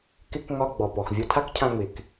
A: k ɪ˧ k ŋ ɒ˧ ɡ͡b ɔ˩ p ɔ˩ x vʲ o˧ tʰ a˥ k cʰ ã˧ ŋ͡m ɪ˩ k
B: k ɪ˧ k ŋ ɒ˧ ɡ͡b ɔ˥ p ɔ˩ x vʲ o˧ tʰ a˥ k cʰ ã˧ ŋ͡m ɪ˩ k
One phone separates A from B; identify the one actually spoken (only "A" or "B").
A